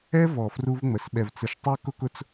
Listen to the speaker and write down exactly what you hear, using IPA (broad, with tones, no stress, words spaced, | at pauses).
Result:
ɛ˦vɔ˨ fru˦vŋ͡mə˨s ɓɛ˨vt͡sə˨ʃtˤɜ˦ kʊ˦kʊ˦t͡s